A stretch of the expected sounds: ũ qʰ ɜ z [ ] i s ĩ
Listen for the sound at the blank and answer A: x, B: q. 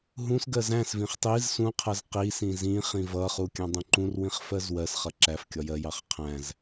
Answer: B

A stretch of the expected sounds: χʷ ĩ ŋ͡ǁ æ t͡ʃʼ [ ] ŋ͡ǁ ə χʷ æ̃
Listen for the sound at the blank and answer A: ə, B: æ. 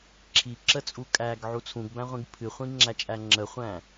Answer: B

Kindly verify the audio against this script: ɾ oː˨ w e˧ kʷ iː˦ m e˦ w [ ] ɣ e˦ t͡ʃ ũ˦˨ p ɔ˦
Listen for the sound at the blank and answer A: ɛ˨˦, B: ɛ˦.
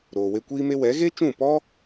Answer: A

